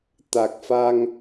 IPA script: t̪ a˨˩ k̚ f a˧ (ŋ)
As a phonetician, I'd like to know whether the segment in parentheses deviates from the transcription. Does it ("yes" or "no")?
no